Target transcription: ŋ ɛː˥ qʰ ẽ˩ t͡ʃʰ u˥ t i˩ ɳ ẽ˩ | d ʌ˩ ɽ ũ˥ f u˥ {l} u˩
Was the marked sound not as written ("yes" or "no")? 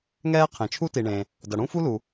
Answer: no